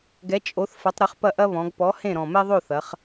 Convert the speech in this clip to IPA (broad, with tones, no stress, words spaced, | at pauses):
ɡɛ˨˥ t͡ʃʼo˨˥θ fɐ˨˥tˤ ɾɘ˨˥χpɐ˥˨ʔɐ˥ βɔ̃˩˧ɡpɔ˨˥hẽ˥˨ ɾɔ̃˨˩mɛ˥ðˤo˥˨ θɐ˩˧χ